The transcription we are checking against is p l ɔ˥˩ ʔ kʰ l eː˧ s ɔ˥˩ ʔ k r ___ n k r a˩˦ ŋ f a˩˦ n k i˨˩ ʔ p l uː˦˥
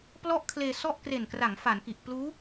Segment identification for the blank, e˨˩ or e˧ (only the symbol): e˨˩